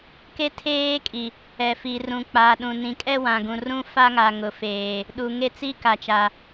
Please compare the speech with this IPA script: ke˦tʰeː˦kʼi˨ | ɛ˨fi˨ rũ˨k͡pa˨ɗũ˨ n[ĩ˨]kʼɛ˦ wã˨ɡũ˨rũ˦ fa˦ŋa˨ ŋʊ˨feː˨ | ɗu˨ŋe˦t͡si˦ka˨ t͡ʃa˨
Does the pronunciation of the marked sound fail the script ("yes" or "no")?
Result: no